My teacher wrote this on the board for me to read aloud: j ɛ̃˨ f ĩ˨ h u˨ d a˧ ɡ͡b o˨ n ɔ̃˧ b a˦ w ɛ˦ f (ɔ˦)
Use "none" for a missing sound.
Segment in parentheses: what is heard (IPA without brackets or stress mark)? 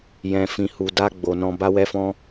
ɔ̃˦